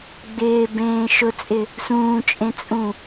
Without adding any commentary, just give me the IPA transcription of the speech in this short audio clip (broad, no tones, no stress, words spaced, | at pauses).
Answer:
ɡ͡bɪːbẽː ʃʊt͡sʼɪ | sũːt͡ʃʼẽt͡sʼũ